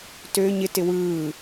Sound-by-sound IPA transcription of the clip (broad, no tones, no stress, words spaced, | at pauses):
tø ɲɪtɪ wɯː